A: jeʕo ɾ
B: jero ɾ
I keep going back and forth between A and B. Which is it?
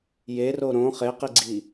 B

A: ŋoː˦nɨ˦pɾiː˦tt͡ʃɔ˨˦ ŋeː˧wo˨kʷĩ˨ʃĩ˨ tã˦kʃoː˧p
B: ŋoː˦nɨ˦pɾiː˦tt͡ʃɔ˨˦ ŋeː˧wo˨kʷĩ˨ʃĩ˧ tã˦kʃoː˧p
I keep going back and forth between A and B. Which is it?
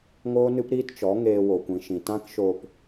A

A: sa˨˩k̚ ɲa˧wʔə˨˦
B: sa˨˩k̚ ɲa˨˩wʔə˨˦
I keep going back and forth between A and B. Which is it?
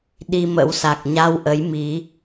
A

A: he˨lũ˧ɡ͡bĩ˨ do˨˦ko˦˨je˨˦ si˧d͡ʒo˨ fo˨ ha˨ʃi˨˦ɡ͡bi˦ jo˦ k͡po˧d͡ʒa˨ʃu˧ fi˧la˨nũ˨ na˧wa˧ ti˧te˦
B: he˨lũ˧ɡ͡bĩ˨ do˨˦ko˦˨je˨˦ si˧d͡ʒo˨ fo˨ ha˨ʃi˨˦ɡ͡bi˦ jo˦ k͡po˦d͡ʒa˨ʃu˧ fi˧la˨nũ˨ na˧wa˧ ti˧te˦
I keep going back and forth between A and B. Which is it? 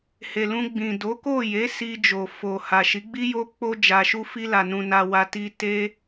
A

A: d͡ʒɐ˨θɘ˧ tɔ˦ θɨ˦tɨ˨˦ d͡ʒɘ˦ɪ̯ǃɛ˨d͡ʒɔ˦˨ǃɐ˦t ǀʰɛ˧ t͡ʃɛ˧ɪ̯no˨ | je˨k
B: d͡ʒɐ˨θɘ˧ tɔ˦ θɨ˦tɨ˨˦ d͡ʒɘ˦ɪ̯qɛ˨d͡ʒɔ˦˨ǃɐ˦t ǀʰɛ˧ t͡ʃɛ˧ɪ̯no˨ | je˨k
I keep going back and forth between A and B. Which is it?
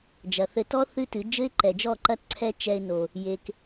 A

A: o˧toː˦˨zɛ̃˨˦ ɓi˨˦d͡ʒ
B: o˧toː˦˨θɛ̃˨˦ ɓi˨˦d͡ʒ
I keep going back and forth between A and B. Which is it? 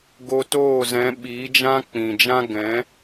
A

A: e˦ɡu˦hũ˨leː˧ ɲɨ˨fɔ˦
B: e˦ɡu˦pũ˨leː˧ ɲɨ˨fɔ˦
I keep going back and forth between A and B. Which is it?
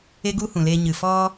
A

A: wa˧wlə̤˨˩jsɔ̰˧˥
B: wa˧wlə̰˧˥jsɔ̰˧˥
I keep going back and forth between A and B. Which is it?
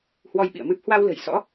A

